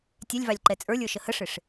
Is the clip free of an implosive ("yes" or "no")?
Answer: yes